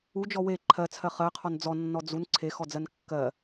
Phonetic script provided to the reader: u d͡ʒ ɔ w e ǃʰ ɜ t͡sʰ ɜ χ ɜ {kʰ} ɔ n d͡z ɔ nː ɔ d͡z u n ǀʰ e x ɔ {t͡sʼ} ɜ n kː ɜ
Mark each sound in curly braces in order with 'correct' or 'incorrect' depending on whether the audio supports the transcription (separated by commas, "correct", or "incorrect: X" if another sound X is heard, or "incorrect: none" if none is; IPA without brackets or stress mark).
incorrect: qʰ, incorrect: d͡z